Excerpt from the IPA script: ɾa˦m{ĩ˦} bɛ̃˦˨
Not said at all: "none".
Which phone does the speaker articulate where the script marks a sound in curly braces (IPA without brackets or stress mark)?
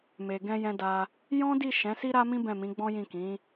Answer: ĩ˦